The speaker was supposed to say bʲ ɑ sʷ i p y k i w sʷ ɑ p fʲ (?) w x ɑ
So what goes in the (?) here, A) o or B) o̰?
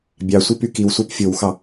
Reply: A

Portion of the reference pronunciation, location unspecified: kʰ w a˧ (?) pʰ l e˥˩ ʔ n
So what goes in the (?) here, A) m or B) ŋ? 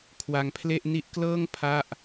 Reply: B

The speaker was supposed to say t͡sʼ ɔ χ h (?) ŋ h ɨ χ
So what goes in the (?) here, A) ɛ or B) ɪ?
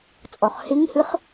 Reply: B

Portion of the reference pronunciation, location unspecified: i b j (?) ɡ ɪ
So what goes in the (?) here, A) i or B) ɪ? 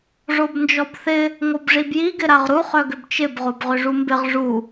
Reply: A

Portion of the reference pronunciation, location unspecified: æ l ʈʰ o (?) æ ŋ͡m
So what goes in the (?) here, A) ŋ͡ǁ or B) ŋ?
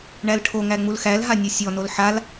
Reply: B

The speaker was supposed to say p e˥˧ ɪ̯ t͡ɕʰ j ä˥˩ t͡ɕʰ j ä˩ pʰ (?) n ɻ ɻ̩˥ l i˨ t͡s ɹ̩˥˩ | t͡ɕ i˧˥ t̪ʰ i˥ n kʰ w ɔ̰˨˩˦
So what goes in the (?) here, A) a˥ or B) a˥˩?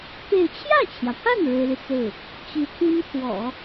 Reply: B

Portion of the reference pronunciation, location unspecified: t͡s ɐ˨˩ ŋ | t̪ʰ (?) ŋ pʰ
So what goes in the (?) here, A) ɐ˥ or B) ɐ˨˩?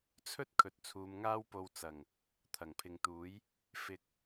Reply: B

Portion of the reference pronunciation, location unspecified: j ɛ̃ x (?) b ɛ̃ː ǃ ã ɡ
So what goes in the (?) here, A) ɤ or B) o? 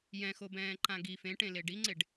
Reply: B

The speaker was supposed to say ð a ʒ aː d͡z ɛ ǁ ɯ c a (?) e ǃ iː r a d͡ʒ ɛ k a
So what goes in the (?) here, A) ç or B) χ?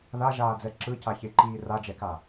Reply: A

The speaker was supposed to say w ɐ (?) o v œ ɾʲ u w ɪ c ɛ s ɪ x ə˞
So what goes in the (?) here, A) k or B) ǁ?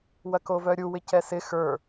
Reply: A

